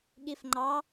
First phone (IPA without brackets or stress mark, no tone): ɠ